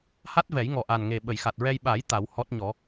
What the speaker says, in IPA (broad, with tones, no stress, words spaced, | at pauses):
ha˦˥t̚ vɛ˨˩˦jŋɔ˨˩ʔa˨˩nŋe˨˩ ɓə˨˩˨jxa˨˩t̚ ɹɛ˧j ɓa˨˩˦j t̪a˨˩˦whɔ˦˥t̚ɲɔ˨˩˦